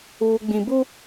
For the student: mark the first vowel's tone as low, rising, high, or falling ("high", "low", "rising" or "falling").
low